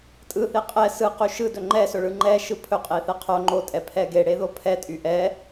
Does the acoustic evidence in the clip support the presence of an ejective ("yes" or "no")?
yes